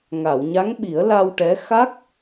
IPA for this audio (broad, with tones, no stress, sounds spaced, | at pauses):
ŋ a˨˩˨ w ɲ a˧˥ ŋ ɓ i˨˩˦ ə̯ l a˧ w ʈ ɛ˧˥ x a˦˥ k̚